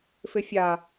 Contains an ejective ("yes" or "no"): no